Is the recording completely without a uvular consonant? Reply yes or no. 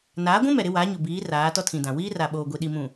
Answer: yes